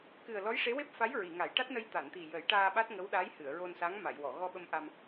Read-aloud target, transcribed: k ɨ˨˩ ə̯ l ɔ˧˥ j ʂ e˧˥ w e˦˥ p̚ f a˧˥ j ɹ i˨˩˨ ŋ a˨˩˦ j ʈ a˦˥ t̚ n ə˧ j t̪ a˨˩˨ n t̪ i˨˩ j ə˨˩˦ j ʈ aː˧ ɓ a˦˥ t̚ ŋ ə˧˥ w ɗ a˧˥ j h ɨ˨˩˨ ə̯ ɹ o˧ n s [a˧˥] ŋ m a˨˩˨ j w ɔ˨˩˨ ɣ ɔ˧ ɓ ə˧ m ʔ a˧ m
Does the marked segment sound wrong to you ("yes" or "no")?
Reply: no